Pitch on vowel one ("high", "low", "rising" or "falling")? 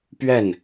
falling